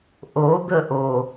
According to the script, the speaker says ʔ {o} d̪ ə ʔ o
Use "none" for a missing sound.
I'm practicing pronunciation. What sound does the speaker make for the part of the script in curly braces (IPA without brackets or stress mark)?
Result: o